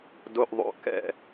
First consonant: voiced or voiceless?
voiced